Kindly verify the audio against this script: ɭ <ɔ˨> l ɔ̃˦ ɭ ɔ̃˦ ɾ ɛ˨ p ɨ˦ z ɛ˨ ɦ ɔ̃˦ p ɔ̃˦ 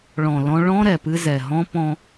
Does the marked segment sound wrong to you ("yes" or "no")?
yes